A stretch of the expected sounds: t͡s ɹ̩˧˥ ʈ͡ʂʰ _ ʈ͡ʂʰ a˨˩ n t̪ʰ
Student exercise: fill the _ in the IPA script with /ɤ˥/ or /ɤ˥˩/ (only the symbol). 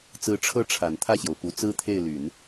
ɤ˥˩